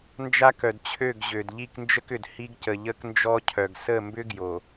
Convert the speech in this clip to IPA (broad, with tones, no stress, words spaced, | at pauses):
nd͡ʒa˦kœ˨dt͡ɕʰø˦˨ɡ ʑø˨dʎi˦˨knd͡ʒə˦kʏ˨d hi˦ɡcə˨ ʎə˦knd͡ʒɔ˦cʰœ˨ɡ sə˦˨mbʏ˦ ɡjo˨